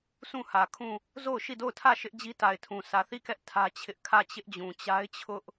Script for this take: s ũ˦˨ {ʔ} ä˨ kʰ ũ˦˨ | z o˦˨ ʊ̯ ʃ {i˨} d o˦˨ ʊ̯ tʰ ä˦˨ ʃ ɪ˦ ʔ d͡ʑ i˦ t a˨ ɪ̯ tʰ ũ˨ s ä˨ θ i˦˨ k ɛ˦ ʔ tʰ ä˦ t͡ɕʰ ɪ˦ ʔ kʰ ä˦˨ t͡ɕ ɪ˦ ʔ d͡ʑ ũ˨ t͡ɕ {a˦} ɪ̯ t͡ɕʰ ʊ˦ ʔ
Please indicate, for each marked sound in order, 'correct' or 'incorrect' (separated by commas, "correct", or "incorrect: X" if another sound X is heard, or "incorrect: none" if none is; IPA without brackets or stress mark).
incorrect: h, incorrect: i˦˨, correct